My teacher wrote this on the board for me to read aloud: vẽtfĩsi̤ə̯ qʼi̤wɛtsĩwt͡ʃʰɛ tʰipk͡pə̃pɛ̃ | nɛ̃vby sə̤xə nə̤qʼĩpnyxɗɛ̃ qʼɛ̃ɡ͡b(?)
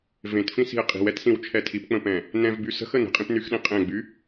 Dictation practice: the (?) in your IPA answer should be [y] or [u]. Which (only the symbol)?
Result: y